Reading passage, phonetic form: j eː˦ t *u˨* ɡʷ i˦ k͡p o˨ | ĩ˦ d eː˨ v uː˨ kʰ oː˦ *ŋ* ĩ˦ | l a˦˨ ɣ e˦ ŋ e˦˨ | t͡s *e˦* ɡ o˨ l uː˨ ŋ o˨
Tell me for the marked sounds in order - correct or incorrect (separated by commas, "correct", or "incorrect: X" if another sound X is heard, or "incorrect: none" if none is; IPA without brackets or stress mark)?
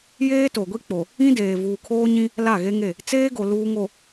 incorrect: o˨, incorrect: ɲ, incorrect: eː˦